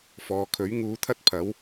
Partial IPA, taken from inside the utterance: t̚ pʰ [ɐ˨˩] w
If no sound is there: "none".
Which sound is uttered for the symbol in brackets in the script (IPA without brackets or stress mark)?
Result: ɐ˨˥